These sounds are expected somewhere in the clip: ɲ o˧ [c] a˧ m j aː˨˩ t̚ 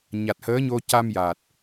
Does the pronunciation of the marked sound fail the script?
no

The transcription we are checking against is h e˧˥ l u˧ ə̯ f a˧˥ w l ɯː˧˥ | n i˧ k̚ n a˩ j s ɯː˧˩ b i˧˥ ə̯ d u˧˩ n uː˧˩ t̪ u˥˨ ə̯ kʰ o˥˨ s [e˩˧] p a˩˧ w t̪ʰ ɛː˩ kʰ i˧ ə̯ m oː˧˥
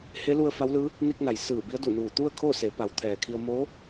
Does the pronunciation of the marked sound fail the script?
no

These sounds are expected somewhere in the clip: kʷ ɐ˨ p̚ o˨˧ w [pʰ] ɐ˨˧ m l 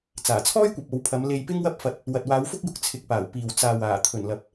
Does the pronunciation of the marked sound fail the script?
no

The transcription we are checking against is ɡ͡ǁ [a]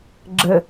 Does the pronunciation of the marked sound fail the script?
yes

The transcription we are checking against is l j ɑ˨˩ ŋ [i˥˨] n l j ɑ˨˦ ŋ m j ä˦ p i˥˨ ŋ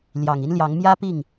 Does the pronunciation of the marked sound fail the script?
yes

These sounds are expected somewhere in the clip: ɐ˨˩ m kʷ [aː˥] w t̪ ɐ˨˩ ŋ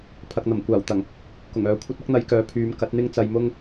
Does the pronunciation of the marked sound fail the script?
yes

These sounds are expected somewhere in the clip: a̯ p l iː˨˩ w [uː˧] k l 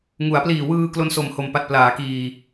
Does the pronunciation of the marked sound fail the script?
yes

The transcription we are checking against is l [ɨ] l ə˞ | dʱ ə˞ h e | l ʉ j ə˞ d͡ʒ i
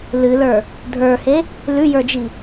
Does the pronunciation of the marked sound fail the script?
no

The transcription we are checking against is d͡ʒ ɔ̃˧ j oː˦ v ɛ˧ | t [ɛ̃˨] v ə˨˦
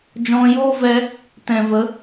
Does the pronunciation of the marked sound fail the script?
no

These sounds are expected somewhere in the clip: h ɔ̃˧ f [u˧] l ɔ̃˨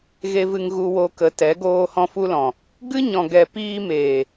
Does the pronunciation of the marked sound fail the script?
no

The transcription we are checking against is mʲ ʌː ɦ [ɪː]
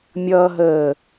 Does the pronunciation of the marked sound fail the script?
yes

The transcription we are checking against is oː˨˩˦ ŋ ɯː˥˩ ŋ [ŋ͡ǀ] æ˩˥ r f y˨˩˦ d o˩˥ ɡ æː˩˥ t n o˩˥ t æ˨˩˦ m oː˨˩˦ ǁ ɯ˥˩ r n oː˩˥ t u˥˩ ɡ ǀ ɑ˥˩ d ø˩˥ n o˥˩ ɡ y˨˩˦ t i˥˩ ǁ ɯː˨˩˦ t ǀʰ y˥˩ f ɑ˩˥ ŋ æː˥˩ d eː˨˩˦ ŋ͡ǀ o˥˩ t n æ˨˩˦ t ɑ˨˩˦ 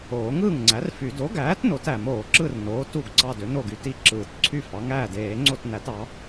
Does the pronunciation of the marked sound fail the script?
no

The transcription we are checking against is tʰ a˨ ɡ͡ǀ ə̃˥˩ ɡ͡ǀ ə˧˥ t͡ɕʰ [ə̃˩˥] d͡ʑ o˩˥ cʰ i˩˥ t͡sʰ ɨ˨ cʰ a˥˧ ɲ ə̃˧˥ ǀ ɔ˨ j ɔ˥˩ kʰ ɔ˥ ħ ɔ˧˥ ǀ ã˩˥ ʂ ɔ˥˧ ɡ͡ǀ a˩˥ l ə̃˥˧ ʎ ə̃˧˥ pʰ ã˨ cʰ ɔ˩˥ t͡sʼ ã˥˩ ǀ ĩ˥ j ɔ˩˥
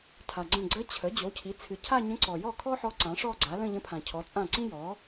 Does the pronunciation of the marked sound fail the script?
yes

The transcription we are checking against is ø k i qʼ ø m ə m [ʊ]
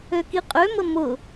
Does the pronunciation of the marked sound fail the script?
no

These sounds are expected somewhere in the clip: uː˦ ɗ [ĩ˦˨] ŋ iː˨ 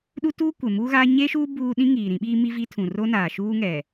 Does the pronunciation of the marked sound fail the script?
yes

